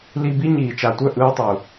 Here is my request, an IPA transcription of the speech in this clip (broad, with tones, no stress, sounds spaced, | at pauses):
l i˧ b i˦ ɲ iː˨ t͡ʃ a˨ tʷ œ˦˨ ʔ ɯː˧ tˤ u˨